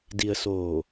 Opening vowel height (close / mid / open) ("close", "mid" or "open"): close